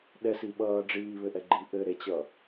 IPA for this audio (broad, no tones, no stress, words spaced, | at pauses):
ɗɛs iɓʌː ɖ͡ʐiːβɘʔɛɡ͡ǃi ʔɘ ɾet͡ɕʌ